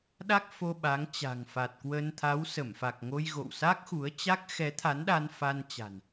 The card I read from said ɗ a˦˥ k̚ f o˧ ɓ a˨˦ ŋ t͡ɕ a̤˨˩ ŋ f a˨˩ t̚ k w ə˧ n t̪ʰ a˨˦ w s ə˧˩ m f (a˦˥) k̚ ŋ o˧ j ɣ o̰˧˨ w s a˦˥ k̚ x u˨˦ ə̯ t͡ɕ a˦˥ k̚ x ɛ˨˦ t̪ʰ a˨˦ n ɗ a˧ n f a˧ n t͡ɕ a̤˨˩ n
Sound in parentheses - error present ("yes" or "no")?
yes